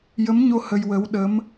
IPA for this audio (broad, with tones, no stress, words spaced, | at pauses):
jə˧˥mɲo˧ hə˧jwə˧˥w ɗə˧˥m